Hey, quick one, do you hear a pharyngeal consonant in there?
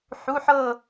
yes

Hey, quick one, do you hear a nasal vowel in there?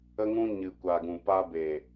yes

